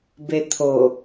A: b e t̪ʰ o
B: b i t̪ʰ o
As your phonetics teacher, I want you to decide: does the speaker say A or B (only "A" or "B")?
A